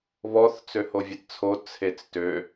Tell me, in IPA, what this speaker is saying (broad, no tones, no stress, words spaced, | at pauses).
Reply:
βɔθ t͡søhovʲɛtt͡sʰo t͡sʰet͡stø